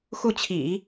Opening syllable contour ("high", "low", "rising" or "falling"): falling